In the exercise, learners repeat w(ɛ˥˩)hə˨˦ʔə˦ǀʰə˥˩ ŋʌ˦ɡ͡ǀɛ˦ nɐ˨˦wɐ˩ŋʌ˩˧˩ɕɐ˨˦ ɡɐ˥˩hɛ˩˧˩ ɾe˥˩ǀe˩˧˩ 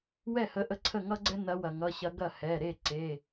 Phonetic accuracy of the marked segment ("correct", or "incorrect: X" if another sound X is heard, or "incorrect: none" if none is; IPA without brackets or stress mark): correct